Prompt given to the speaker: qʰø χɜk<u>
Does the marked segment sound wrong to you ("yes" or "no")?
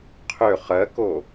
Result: yes